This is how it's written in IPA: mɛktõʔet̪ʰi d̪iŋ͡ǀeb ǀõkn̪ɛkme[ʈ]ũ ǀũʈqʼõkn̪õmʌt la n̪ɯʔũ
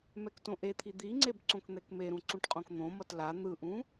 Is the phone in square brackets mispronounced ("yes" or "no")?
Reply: yes